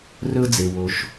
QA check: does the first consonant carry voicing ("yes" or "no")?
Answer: yes